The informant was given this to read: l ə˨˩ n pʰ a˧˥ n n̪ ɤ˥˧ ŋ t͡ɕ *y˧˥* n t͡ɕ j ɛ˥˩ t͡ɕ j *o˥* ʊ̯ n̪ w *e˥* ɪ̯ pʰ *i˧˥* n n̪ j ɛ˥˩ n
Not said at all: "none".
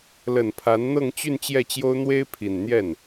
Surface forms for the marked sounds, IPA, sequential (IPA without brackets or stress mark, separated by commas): y˥˧, o˥, e˥, i˨˩